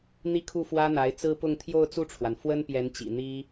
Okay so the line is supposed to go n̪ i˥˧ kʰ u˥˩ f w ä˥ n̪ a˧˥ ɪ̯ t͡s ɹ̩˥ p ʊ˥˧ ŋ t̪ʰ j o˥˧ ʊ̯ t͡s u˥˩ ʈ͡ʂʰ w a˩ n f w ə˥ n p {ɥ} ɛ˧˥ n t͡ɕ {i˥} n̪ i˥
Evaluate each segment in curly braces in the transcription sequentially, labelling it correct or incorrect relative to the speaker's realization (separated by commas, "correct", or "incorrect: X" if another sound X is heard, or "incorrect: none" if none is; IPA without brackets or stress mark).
incorrect: j, incorrect: ḭ˨˩